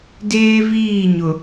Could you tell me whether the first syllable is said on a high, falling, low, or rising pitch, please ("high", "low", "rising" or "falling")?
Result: high